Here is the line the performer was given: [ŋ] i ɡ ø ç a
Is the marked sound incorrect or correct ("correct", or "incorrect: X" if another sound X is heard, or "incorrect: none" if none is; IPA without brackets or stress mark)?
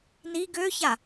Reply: incorrect: n